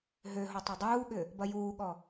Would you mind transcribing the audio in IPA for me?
ɦ ø ɦ o tˤ ɐ dˤ uː ɠ ʏ | b ɐ j uː ɠ ɔ

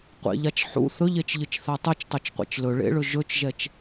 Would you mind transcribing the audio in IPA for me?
qʷ ḛ ʎ a t͡ʃ ħ ṵ θ ɵ ʎ e t͡ʃ ʎ ɨ t͡ʃ θ a tˤ ɨ t͡ʃ tˤ u t͡ʃ qʷ ḛ t͡ʃ l ɵ ɭ ḛ ɭ ɵ ʒ ɵ t͡ʃ ʒ ɛ t͡ʃ

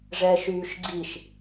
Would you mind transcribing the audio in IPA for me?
ʐ ɛː ʃ yː ʃ ɡ͡ǀ i ʃ

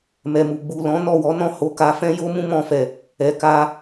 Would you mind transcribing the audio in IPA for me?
m ɛ˨ m u˨ ɡ͡b u˨ l ɔ̃˨˦ n ɔ˦˨ w ɔ˨˦ n ɔ̃˦˨ h o˨˦ k a˧ f ɛ̃˦ j o˦ m ũ˦ m ɔ̃˧ f ɛ˨ | ɛ˨ k a˧

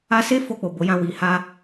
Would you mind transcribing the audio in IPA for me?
a˧ s e˦ f o˦˨ k͡p o˨ b o˨˦ j ã˦˨ w i˨ h a˧

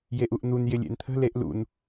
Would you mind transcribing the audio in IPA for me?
j e ʔ u ʔ n̪ u n j ɪ lʲ ḛ n t̪ʰ ə̤ l e ʔ l ṵ n

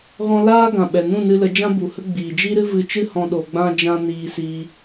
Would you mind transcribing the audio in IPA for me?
ɣ ɔ̃˧ l aː˦ ɡ ã˨ ɓ ɛ˨ n ũ˦˨ n ɨ˧ l ə˨˦ d͡ʒ ã˦ b u˨ h ə˦ ɡ͡b iː˨ d͡ʒ i˦ ɾ ɨ˦ v ɨ˧ t͡ʃ ɨ˦ h ɔ̃˧ ɗ o˧ ɡ͡b ã˦ d͡ʒ ã˦ n iː˧ s iː˧

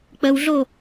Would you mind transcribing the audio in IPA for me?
k͡p ə w ɮ o

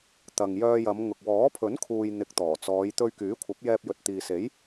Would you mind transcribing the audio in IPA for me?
t̪ ɐ˨ ŋ j œː˧ j ɐ˨˧ m ŋ ʊ˨ k̚ w ɔː˨˥ pʰ ɵ˨˥ n kʰ uː˨ j n̪ ɪ˨ k̚ t̪ ɔː˨˩ t͡s ɔː˨˧ j t̪ ɵ˧ ɥ k yː˨˥ kʷʰ ɐ˨˥ p̚ j ɛː˧ p̚ j ɵ˨ t̚ t̪ iː˨ s e˨˥ j

